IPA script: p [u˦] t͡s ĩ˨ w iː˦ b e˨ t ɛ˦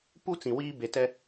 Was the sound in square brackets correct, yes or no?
yes